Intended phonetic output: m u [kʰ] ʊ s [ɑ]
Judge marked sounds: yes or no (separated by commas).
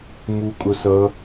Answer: no, no